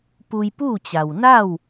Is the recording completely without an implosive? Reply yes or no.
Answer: yes